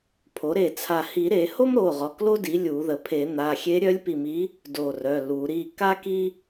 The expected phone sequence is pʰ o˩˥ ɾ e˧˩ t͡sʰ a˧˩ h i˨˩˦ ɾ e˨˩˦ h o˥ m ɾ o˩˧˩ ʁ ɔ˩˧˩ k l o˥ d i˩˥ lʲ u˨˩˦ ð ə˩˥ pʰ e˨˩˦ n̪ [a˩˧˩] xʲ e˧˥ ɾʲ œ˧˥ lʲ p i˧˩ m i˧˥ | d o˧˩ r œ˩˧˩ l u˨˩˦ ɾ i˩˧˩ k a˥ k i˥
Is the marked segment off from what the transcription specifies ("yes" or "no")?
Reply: no